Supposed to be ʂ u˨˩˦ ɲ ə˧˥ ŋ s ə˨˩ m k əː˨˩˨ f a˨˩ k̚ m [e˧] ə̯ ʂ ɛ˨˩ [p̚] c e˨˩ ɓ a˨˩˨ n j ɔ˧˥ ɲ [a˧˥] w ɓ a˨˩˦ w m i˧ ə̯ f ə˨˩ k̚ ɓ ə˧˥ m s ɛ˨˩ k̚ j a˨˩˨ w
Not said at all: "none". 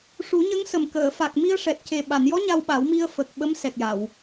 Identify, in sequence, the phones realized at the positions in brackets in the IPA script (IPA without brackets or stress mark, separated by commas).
i˧, t̚, a˧